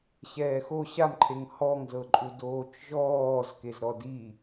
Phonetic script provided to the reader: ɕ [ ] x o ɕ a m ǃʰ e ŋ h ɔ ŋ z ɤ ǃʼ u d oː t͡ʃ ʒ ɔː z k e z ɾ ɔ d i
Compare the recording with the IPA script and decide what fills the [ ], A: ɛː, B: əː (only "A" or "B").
A